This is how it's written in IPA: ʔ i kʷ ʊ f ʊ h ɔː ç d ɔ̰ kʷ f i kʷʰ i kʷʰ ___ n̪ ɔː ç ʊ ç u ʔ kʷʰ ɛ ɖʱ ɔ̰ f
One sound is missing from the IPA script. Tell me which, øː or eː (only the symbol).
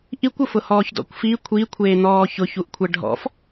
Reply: eː